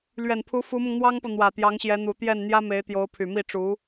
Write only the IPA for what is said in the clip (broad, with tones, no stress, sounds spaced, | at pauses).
l ɥ ɛ˨˩ n pʰ u˧˥ f u˧˥ m ʊ˧ ŋ n̪ w ɑ˥ ŋ p ɤ˨ n̪ w ä˨˩ t̪ j ɑ˧˥ ŋ ɕ j ɛ˧˥ n̪ u˨˩ t̪ j ɛ˥˩ n n̪ j ä˥ m e˧˥ ɪ̯ t̪ j o˧˥ ʊ̯ pʰ y˨˩ m i˥˩ ʈ͡ʂ u˧˥